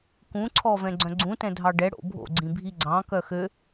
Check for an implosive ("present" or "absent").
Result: absent